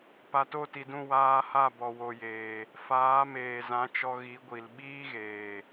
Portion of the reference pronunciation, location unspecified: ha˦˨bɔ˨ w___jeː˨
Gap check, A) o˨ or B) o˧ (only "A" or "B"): A